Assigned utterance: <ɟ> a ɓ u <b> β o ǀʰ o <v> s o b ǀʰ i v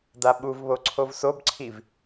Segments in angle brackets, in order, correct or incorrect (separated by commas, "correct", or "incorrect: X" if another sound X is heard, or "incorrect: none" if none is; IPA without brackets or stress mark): incorrect: d, incorrect: v, correct